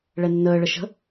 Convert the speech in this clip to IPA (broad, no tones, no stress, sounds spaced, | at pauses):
ɭ ɛ nː əː ɭ ə ʃ ə̤